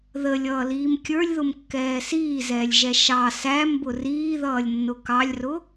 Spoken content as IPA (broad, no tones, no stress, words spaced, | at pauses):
ðəlʲʌːliːm kʲə˞lʲðʊmkːɛː siːzɛːlʲʒɛ ʃɑ sæmbʊ riːðʌːlʲnːʊ kɑlʲrʊ